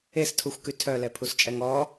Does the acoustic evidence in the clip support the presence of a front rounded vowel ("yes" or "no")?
yes